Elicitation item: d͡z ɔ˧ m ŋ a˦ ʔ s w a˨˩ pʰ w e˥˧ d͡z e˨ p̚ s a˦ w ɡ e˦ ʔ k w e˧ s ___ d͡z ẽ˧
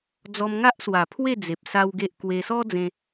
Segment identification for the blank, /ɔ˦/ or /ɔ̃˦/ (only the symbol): ɔ˦